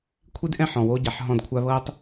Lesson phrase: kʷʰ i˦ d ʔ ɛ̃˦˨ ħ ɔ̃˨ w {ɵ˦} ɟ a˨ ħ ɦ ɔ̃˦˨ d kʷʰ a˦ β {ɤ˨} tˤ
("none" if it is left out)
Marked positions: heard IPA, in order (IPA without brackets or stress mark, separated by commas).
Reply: o˦, ɤ˦